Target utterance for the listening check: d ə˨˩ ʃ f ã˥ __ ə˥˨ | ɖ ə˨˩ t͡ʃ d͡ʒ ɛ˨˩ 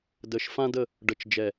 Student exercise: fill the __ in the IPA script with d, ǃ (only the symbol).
d